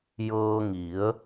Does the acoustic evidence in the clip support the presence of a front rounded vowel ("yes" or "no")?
no